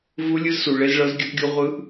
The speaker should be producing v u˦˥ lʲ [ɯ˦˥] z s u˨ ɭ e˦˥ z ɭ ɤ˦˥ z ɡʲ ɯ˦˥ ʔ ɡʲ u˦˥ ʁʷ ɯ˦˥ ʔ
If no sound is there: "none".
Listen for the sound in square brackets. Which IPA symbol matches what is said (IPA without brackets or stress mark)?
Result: ɯ˦˥